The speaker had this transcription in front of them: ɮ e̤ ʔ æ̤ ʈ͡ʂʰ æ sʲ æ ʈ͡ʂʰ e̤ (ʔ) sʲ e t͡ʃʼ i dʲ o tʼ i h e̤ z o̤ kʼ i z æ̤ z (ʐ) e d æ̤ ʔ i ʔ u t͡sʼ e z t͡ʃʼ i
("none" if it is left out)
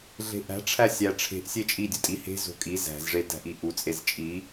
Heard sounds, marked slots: ʔ, ʐ

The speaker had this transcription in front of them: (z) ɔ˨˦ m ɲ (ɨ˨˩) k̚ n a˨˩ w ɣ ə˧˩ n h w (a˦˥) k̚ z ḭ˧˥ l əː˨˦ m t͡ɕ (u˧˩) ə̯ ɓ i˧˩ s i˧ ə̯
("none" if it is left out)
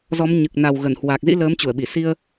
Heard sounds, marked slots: z, ɨ˨˩, a˨˩, u˧˩

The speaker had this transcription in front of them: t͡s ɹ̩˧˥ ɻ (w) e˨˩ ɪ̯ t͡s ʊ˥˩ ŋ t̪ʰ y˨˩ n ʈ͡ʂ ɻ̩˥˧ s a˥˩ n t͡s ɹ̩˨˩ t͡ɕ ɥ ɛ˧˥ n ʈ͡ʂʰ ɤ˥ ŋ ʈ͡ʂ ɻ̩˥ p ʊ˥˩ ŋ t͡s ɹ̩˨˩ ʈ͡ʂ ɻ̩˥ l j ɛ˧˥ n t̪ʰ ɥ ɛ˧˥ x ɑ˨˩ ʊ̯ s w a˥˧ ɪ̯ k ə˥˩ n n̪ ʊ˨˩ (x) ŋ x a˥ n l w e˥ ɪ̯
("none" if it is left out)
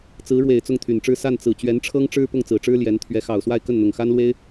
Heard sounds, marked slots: w, none

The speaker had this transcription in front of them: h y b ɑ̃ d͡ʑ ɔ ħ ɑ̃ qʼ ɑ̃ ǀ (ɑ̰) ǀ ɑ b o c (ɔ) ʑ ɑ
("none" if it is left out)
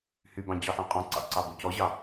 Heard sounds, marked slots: ɑ̰, ɔ

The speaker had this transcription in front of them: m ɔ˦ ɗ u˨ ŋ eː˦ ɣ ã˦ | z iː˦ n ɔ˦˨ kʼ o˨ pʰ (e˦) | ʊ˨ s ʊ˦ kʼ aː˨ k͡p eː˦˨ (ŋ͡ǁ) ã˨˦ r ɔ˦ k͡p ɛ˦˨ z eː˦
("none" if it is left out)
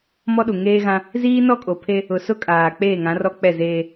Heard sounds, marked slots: e˦, ŋ

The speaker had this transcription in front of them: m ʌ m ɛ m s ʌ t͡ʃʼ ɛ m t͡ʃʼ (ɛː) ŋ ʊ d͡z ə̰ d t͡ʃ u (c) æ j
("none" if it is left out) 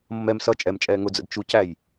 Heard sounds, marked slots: ɛː, c

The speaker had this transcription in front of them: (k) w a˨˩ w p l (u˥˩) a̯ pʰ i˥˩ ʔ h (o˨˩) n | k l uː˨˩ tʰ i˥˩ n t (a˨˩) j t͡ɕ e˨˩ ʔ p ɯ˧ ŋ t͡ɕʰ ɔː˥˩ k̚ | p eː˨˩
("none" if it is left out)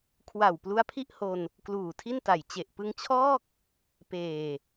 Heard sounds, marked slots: kʰ, u˦˥, o˧, a˨˩

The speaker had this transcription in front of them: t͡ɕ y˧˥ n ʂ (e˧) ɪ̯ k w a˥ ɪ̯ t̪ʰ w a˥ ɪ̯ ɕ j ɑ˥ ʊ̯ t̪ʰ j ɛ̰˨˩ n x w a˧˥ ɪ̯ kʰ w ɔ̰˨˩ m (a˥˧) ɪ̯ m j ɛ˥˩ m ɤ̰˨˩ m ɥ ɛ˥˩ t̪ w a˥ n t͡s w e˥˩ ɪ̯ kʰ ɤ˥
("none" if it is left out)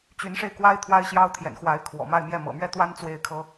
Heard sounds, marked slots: e˧, a˥˧

